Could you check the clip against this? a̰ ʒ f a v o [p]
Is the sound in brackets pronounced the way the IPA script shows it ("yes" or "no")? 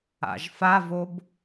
no